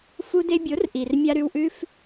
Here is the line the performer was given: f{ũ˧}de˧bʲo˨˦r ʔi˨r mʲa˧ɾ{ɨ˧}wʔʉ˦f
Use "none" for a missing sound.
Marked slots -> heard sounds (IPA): u˧, ʉ˧

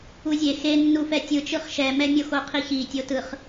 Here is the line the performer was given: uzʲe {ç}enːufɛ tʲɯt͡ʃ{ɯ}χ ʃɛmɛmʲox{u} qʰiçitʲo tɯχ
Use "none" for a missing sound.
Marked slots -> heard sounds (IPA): x, ɯ, o

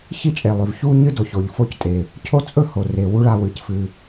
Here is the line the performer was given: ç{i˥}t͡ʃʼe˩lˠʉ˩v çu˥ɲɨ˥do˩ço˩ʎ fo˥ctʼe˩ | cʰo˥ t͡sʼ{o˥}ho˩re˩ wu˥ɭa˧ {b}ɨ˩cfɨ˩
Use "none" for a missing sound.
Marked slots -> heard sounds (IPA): i˥, ɵ˥, w

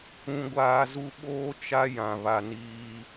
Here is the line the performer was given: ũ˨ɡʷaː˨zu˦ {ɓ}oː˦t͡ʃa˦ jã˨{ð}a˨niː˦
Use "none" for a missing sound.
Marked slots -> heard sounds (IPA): ɓ, β

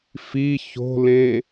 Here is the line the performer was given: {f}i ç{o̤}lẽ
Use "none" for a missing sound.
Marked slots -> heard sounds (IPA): f, o̤

